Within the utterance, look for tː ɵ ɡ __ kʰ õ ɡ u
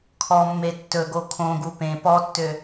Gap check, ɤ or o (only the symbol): o